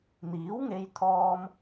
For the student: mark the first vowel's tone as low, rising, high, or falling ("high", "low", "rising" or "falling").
rising